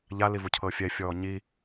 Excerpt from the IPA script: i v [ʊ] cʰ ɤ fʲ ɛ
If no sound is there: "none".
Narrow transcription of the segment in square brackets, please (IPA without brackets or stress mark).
u